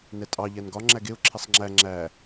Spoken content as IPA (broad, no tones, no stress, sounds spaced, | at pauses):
n ɛ tʼ ɑ ʎ æ n ɡ ɒ ŋ͡ǁ æ ɡ e ʊ̯ ǁʰ e sˤ ŋ͡ǁ æ ŋ͡ǁ æ